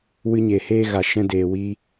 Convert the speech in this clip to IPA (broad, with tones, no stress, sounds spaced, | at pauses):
w ɨ˧ ɲ e˨ h eː˧ ɣ a˨ ʃ ɛ̃˧ d eː˨ w iː˧